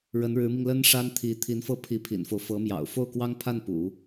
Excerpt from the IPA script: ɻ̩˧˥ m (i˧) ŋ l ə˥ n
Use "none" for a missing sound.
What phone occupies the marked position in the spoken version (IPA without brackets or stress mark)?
i˧